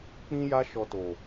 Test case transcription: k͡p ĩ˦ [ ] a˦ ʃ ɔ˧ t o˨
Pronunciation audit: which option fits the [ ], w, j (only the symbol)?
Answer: j